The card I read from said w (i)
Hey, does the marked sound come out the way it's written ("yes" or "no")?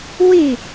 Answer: yes